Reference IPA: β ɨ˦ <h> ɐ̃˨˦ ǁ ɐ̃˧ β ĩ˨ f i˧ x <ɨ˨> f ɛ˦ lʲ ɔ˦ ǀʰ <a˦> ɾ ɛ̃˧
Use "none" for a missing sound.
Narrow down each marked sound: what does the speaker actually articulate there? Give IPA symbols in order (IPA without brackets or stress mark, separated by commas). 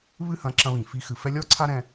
h, ɨ˨, a˦